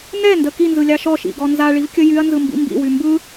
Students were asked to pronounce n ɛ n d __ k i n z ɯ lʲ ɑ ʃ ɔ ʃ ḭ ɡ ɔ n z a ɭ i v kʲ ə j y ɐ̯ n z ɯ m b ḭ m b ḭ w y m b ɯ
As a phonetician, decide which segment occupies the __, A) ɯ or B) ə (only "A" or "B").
B